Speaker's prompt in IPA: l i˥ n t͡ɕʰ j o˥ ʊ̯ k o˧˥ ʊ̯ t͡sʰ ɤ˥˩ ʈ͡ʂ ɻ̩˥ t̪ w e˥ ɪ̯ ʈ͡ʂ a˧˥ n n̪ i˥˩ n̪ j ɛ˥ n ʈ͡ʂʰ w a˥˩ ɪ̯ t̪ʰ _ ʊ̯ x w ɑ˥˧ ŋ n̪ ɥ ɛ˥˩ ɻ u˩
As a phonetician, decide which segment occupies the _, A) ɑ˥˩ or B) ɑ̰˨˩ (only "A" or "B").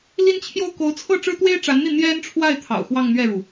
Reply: B